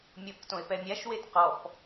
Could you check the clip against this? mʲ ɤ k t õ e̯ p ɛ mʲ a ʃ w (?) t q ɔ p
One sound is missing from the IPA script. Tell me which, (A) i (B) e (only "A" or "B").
B